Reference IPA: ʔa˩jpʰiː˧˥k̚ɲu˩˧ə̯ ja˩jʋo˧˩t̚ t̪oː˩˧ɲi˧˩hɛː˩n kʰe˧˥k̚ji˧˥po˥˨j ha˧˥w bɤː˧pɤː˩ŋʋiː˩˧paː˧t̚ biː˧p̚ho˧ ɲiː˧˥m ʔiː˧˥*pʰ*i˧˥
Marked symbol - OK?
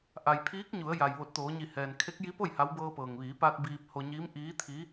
no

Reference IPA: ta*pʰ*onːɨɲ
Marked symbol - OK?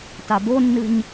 no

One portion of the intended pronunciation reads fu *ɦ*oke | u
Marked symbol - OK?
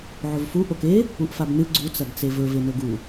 no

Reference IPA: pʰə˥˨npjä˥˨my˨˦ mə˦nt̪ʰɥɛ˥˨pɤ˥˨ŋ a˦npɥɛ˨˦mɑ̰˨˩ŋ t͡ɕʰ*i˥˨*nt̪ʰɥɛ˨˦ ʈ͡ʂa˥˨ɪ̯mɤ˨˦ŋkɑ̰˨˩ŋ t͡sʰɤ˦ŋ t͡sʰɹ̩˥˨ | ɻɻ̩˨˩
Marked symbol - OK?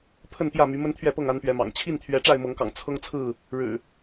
yes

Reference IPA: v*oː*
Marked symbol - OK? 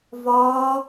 no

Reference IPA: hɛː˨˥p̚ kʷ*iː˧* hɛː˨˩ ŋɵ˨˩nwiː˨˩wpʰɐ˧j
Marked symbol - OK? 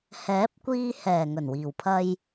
yes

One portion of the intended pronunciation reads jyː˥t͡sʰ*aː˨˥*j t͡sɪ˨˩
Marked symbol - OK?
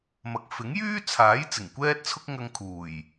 yes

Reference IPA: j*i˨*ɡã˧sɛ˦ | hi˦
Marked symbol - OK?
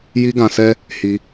no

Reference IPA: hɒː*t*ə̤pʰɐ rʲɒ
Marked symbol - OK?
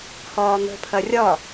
no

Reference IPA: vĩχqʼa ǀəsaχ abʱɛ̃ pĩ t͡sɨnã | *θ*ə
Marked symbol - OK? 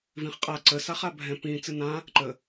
no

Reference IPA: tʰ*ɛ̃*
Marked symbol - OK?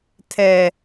no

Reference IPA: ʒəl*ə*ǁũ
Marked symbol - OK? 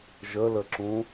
yes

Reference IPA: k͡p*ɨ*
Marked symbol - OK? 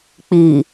no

